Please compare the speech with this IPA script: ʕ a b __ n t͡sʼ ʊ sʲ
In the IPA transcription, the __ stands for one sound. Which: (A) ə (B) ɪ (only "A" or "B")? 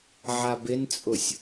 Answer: B